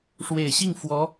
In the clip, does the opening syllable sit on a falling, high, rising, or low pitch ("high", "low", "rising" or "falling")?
low